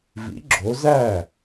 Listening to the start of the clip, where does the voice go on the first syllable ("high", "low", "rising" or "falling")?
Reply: rising